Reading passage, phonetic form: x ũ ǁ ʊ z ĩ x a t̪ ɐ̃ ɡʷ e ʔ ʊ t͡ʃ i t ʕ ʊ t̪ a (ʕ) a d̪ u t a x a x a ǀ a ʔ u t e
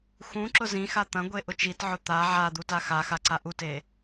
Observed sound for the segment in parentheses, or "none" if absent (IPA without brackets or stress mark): ʕ